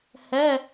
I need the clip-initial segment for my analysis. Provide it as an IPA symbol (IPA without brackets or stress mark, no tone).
h